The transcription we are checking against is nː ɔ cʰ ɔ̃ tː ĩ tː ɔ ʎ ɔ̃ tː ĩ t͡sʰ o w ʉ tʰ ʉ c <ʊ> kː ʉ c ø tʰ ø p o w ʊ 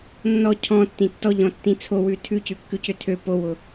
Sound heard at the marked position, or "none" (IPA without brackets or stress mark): ʉ